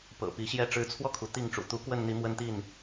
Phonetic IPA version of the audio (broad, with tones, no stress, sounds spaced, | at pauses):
p ɤ̰˨˩ p i˨˦ ɕ j ɛ˦ ʈ͡ʂ ɻ̩˨˦ t͡sʰ w ɔ˧ kʰ u˩ t̪ i˥˨ ŋ ʈ͡ʂ ṵ˨˩ t̪ u˨˦ k w ə˥˨ n n̪ i˨˦ m w ə˦ n t̪ i˥˨ n